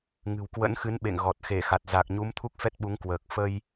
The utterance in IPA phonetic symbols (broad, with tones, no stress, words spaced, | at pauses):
ŋɨ̤˨˩wkwə̰˧˥nxɨ˨˦n ɓḛ˧˨ŋ ɣɔ˨˩t̚ xe˧˩xa˨˩t̚ za˨˩k̚ɲu˨˦m t̪ʰu˦˥k̚fɛ˦˥t̚ɓu˨˦ŋkwəː˨˩k̚ fə˧j